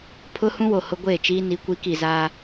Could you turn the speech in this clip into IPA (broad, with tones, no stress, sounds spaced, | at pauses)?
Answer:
pʰ ʊ˦ h ũ˦ w o˨ h ʊ˦ ɡʷ eː˦˨ t͡ʃ iː˦ n i˨˦ kʷ i˨˦ k i˨ z aː˦